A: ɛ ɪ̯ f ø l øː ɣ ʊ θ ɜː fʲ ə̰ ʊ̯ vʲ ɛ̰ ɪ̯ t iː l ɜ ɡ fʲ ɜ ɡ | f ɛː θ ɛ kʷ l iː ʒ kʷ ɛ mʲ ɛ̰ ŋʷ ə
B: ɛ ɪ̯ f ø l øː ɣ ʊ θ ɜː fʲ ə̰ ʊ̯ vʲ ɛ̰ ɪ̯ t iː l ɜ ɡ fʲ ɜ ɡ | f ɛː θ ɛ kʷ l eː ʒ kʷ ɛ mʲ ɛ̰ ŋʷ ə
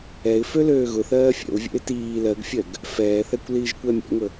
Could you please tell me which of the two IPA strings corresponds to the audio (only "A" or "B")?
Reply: A